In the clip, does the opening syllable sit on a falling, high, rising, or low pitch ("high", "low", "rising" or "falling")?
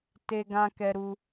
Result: high